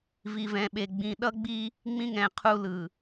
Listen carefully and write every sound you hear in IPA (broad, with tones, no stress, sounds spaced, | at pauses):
v i˨ v ɛ̃˨ ɓ e˨ ɡ͡b ĩ˨ ɗ ʌ˦ ɡ͡b i˦ | ŋ͡m ĩ˦ ŋ ɛ̃˨ qʰ u˦ l ɯ˨